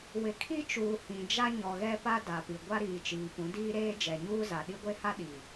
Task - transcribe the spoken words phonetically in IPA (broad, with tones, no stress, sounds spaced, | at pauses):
w ɪ˨ kʰ i˦ t͡ʃ uː˨ h ĩ˨ d͡ʒ a˦ ɲ ɔ˨ ɣ ɛ˦ p a˦ d a˨ p i˨ ɡʷ a˦ ɾ iː˨ t͡ʃ iː˨ p ũ˨˦ d iː˦ ɾ eː˦ d͡ʒ ɛ˨ ɲ uː˦ z a˨ ɗ i˦ ɡʷ e˦ h a˦ ɗ i˨